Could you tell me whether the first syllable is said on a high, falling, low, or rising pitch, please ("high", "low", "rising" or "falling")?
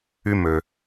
high